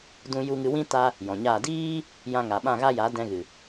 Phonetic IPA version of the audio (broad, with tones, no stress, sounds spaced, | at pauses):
d ũ˧ j u˧ ŋ ɨ˧ w ĩ˦ t a˧ | j ɔ̃˨ ɲ aː˦˨ d iː˦ | j ã˧ ŋ a˨ ɓ ã˦˨ ɣ a˦ j a˨˦ d ɛ̃˧ ɣ ɨ˨